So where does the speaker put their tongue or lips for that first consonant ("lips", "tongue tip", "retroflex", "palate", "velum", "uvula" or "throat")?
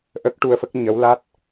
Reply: throat